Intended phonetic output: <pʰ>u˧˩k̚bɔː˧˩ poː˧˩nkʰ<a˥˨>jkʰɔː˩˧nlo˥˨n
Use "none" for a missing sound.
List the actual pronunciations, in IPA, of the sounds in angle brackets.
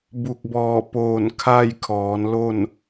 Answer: b, a˥˨

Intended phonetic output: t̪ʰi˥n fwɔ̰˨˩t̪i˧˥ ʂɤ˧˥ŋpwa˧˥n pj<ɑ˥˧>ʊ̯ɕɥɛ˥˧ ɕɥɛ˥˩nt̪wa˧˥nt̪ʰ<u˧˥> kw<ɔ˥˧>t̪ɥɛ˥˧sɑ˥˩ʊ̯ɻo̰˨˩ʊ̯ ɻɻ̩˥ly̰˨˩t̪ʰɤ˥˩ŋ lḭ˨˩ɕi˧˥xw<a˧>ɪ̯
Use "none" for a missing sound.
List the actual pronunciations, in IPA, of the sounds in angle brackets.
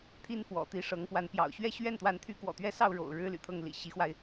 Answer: ɑ̰˨˩, y˧˥, ɔ̰˨˩, a˧

